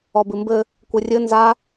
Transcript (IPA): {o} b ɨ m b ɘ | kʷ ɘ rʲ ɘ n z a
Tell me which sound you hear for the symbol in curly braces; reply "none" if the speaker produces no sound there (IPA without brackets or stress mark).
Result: ɔ